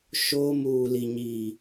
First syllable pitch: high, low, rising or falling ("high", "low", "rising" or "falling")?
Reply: high